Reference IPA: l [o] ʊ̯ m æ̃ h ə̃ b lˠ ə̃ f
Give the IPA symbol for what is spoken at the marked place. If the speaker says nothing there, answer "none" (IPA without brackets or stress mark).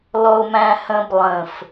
ɔ